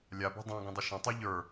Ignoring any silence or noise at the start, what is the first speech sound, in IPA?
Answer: lʲ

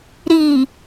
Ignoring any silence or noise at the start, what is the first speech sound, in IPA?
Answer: ɾ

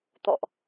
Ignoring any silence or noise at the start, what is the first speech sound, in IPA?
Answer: t̪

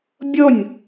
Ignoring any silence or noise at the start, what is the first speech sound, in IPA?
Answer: bʲ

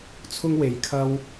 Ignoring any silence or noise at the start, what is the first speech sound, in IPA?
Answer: t͡sʰ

